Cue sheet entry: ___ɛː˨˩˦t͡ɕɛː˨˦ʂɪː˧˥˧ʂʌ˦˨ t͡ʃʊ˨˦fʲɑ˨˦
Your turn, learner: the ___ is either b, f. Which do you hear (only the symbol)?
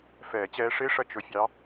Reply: f